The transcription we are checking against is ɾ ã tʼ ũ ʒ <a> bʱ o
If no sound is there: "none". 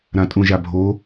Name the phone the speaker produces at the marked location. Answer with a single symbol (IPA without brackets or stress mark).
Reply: a